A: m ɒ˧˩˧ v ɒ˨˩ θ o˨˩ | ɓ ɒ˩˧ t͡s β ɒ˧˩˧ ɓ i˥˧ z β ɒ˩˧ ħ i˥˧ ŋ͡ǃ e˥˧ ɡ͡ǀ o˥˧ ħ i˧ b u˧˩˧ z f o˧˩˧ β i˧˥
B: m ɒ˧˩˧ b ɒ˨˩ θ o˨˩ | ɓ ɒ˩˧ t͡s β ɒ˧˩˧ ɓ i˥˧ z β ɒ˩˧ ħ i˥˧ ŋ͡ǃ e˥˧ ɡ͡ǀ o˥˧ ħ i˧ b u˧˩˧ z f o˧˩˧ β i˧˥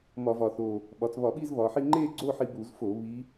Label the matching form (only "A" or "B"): A